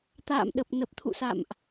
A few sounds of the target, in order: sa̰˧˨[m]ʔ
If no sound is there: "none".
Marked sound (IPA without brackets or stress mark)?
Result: m